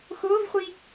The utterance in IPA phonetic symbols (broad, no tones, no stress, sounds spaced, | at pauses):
x ʊː v χʷ i